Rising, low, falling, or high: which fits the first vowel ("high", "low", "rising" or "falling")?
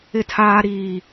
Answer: high